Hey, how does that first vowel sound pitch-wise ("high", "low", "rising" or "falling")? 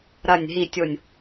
low